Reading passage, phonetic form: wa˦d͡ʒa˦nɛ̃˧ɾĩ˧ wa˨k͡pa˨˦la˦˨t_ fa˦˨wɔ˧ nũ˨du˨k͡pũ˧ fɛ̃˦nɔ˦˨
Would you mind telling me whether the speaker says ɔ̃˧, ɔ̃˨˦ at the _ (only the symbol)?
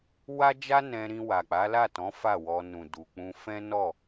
ɔ̃˨˦